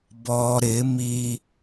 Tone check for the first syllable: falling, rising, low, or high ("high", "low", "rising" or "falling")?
low